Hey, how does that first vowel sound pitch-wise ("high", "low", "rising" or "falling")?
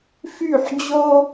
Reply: falling